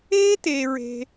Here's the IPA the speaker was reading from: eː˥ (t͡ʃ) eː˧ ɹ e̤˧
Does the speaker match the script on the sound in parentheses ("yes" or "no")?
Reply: no